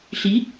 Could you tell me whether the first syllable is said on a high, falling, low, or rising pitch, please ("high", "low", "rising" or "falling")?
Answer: rising